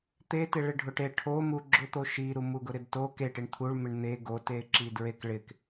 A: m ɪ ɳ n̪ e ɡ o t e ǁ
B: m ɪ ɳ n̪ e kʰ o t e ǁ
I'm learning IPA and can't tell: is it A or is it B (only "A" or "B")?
A